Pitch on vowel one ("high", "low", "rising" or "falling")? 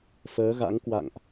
rising